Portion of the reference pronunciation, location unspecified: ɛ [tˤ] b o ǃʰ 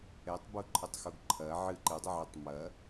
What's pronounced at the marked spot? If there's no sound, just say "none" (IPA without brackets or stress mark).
tˤ